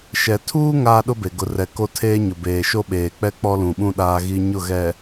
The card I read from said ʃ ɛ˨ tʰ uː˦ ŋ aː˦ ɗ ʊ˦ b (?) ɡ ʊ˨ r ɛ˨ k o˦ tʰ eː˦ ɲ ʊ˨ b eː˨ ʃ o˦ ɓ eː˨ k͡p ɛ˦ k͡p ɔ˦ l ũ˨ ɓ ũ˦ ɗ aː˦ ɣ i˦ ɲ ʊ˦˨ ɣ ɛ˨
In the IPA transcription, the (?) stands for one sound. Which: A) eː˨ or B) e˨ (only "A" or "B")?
B